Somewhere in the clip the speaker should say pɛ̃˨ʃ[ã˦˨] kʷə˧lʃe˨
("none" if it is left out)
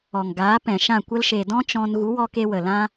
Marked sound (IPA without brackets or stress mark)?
ã˦˨